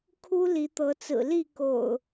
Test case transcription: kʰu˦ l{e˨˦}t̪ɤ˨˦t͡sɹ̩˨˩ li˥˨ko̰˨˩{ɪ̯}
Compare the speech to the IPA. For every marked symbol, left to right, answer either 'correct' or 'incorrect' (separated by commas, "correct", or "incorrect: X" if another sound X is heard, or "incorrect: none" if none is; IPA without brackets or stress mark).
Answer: incorrect: i˨˦, incorrect: ʊ̯